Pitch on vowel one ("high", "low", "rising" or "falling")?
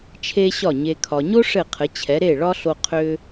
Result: high